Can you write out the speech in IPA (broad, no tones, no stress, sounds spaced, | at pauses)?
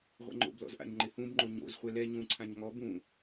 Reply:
ʁʷ ɛ̰ ŋ͡ǃ o̰ b l ɔ̰ z ʔ a̰ ɲ ŋ͡ǃ ɪ h ũ b ŋ͡ǃ o ɲ o̰ z χʷ ɛ l ɛ ɲ ũ ǀʰ ã ɲ ŋ ɔ b ũ